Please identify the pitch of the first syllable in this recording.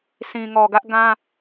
low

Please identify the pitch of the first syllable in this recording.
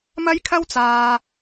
high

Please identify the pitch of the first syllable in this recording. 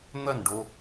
falling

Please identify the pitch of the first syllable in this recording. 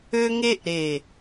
high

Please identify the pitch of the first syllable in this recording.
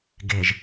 low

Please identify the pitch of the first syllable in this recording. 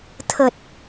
low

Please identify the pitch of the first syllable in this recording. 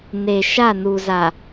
low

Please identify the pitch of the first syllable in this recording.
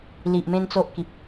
low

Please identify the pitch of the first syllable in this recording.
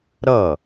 falling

